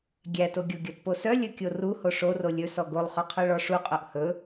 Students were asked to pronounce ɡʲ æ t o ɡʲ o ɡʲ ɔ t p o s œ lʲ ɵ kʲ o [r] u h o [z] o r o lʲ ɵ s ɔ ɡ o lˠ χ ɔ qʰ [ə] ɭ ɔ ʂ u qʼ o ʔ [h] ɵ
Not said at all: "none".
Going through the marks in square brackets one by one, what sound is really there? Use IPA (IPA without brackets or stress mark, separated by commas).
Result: r, ʂ, œ, h